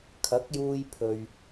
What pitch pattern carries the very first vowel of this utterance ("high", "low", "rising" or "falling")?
rising